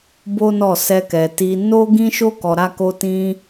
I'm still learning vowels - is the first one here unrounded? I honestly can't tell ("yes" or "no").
no